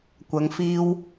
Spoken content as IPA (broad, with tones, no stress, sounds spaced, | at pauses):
kʷ ɐ˨˧ ŋ f iː˧ w